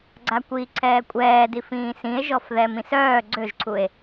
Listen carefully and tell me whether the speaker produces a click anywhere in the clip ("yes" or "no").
yes